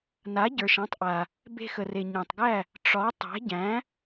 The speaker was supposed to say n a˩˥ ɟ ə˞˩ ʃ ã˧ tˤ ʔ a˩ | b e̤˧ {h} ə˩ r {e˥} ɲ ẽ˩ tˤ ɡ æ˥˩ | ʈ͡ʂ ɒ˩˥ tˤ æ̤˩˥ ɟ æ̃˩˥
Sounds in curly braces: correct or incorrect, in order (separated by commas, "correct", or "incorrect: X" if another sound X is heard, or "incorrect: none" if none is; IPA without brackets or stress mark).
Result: incorrect: x, incorrect: e˩